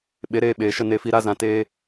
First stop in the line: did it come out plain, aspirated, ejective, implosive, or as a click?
implosive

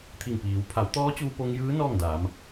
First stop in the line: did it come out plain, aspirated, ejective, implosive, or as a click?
aspirated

